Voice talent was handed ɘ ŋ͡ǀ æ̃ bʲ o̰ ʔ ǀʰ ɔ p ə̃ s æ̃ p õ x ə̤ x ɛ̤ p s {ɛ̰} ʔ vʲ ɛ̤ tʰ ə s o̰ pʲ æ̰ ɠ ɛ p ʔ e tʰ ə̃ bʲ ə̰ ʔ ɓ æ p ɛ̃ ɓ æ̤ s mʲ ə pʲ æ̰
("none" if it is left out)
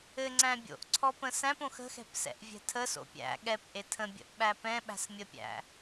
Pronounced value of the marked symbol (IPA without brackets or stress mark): ɛ̰